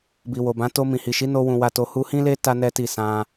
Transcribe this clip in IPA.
b i˨ w o˨ b ã˨˦ t o˧ m ĩ˨ h i˨ ʃ i˨˦ n o˦ w ũ˧ w a˧ t o˧ h u˧ h ĩ˦ l e˦ t a˦ n ɛ˦ t i˦˨ s ã˧

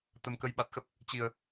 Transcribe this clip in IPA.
t̪ ə˨˩ m k ə˨˦ j ɓ a˨˩ t̚ x ə˦˥ p̚ | t͡ɕ i˨˩ ə̯

